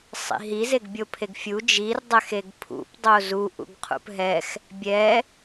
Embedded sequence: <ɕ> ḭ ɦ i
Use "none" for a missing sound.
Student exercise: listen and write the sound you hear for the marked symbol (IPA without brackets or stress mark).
sˤ